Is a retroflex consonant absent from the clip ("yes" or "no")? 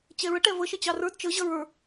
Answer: no